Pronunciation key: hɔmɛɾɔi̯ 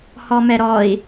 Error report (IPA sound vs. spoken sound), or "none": none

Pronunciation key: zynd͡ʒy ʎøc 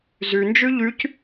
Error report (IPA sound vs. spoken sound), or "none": ø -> y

